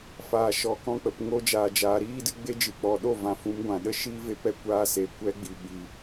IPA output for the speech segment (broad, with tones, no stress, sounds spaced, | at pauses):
f aː˨ ʃ ɔ˨ k ɔ̃˧ k͡p ə˨ p ŋ o˧ d͡ʒ aː˨ d͡ʒ aː˨ ɾ iː˦ d ɨ˦ ɡ͡b e˦ d͡ʒ ɨ˨ k͡p ɔ˨ ɗ o˦˨ v ã˨ f ũ˨˦ m ɡʷ ã˨ ɗ ə˦ ʃ iː˦ v e˦ p ɛ˦ kʷ aː˧ s e˨ kʷ ɛ˦ ɡ͡b i˨ ɓ i˨